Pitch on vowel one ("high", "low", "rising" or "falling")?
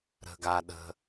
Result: low